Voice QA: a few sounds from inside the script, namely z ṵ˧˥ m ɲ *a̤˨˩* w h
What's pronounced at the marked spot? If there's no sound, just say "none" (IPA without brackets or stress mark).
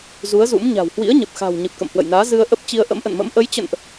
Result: a̤˨˩